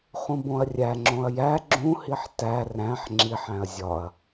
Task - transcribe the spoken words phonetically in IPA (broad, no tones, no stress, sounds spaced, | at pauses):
χ ũ b õ ɐ̯ rʲ æ ŋ͡ǁ õ ɐ̯ j æ ɡ͡ǁ ũ h i ħ t æ r æ̃ ħ ŋ͡ǁ i ħ æ̃ ɐ̯ zʲ ɒ ɐ̯